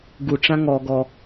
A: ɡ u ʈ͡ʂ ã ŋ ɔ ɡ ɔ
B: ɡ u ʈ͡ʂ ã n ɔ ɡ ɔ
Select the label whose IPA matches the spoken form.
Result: A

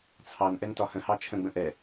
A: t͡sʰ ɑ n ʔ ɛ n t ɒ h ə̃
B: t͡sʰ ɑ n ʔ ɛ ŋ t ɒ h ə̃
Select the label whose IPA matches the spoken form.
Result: A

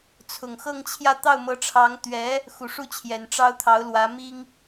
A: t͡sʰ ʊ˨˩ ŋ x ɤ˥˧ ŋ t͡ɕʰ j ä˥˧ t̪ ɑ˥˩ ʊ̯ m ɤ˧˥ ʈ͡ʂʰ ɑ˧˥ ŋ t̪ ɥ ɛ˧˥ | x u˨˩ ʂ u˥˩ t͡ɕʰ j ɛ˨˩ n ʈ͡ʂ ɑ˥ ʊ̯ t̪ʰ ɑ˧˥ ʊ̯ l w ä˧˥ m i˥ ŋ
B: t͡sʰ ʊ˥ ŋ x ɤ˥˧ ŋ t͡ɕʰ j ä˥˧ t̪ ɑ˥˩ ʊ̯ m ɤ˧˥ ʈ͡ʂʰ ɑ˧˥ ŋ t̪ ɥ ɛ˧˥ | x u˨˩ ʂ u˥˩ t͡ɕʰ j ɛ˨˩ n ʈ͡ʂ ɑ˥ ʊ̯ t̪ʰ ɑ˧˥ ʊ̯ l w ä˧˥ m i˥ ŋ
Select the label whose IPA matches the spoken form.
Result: A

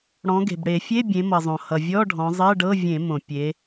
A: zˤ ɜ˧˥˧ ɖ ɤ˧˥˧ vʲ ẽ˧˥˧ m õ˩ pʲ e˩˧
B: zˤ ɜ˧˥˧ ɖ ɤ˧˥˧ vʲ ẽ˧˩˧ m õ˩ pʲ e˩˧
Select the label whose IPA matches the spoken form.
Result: B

